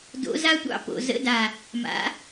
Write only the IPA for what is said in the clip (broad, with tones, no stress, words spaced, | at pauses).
do̰˩˥ za˧tʷɑ̰˥˩po̰˨˩ zə̰˧˥˧da˨˩ | ma̰˩˥